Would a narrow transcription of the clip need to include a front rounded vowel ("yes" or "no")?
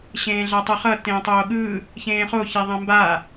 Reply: no